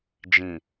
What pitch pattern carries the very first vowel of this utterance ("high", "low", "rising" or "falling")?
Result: low